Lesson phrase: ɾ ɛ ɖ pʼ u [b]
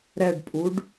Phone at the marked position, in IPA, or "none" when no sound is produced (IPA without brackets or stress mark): ɖ